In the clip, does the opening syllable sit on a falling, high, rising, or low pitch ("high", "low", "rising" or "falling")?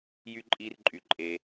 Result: high